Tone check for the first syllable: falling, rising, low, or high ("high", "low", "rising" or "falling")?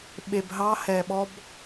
low